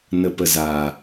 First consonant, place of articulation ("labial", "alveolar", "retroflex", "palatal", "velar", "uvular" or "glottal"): alveolar